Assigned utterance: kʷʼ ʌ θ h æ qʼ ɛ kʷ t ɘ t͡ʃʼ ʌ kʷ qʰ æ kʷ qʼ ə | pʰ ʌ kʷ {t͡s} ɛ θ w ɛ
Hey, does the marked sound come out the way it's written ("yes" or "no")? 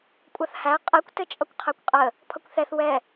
no